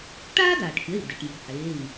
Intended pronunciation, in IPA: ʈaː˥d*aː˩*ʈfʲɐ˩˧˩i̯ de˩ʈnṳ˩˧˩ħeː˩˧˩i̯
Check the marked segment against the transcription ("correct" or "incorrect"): correct